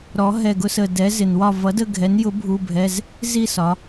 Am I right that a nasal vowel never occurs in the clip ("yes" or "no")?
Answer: yes